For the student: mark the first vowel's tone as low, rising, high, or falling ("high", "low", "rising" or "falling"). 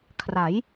rising